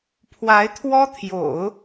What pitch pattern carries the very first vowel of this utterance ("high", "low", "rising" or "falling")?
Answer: rising